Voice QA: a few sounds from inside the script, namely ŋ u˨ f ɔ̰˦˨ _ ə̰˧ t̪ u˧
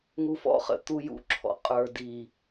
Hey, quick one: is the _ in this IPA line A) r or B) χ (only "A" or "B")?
B